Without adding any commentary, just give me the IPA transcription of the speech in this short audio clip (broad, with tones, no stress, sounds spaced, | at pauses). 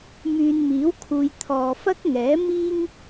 m yː˨ n m iː˨˥ w kʰ uː˨ j t̪ʰ ɔː˨ f ɐ˥ k̚ ŋ ɛː˨˥ m iː˥ ŋ